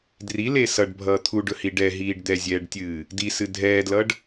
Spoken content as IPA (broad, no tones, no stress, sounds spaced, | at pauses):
d r i l e s ʌ ɖ bʱ ʌː t̪ʰ u ɖ ɵ h i ɖ ɛ ɦ iː ɖ d̪ ɛ zʲ ɛː ɖ tʲ ɨː | d i s ɨ dʱ ɛː d l ʌ ɖ